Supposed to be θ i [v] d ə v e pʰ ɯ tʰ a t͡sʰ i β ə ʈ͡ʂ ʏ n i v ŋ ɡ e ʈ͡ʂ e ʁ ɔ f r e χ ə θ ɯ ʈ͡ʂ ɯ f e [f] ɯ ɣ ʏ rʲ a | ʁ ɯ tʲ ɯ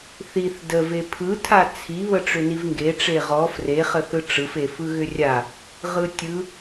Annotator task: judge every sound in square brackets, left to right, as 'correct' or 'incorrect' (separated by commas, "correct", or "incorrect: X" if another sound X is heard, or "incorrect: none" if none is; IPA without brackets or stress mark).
incorrect: θ, correct